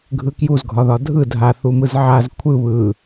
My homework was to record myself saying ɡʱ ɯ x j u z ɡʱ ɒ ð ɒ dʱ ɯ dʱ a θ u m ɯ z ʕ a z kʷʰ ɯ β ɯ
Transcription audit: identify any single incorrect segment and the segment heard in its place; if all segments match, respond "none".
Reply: x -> k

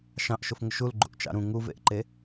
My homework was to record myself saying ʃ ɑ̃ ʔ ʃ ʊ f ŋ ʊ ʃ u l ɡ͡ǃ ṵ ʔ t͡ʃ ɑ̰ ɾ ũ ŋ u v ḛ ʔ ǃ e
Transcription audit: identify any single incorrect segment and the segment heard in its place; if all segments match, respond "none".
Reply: none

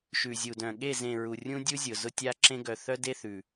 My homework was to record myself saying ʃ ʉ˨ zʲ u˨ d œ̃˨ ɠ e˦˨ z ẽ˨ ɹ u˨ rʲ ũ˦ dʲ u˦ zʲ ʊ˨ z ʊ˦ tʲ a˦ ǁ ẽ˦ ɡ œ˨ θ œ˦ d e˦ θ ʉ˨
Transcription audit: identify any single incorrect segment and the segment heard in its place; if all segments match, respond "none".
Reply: none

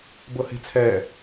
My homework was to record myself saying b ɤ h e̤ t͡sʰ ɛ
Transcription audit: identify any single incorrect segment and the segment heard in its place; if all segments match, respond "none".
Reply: none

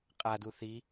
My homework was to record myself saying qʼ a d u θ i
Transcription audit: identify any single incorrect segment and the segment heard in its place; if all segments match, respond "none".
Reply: none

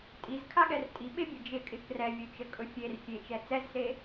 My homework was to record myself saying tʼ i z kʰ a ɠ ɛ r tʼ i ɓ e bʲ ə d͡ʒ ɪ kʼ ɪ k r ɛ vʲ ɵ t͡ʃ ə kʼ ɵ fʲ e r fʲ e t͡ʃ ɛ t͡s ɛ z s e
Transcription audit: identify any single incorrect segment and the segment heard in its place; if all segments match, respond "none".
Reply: none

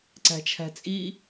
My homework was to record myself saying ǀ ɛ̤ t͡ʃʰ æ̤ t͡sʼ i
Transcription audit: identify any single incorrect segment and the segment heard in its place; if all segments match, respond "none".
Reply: ɛ̤ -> æ̤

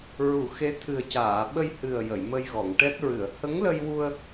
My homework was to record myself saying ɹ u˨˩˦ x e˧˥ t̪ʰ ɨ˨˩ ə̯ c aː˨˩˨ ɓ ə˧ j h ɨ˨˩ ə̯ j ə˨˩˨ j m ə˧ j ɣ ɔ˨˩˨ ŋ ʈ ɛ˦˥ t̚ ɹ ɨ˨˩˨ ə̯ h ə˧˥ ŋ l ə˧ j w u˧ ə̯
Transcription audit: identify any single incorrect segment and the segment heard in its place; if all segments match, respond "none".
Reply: none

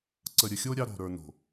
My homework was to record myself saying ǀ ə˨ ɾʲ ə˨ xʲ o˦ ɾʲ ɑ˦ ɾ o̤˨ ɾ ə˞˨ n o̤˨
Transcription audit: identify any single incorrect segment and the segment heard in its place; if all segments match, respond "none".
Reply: none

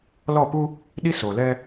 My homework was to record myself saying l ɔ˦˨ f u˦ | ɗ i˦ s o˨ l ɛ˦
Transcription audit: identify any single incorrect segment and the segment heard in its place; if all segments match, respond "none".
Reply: f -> p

